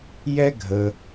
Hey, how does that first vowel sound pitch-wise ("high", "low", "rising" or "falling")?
high